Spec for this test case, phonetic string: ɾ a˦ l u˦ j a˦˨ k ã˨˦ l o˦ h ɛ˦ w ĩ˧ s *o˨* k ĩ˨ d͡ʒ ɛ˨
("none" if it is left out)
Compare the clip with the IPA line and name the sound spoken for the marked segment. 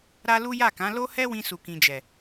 u˨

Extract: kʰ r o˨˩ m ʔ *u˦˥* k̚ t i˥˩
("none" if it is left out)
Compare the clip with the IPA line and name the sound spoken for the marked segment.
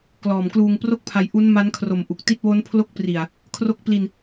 u˨˩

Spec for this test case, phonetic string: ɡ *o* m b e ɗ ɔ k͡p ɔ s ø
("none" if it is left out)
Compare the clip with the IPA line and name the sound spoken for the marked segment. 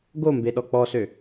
o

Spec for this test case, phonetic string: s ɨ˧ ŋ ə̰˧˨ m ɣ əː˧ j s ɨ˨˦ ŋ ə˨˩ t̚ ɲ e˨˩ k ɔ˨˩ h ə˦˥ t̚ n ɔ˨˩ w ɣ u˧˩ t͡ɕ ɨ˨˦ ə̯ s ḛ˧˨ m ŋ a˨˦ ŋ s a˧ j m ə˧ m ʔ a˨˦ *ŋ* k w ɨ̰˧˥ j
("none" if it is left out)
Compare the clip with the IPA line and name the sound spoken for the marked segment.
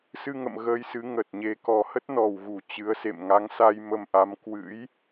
m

